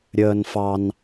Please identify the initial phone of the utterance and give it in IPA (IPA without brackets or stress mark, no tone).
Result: ɾʲ